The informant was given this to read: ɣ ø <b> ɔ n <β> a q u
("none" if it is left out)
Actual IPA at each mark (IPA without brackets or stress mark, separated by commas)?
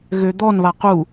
d̪, β